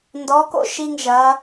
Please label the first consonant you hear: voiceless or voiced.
voiced